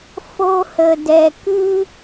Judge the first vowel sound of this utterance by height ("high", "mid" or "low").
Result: mid